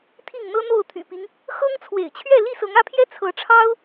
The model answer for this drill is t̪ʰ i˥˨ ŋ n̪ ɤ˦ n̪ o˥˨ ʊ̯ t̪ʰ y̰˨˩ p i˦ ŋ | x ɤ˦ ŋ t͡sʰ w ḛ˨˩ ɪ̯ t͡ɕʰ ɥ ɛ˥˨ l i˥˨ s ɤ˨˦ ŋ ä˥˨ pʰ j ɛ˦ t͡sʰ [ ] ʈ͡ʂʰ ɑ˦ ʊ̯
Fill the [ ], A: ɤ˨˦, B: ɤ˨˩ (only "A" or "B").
A